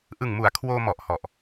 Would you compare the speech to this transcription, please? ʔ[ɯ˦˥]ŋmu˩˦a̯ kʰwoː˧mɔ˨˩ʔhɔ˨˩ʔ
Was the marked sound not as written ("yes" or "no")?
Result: yes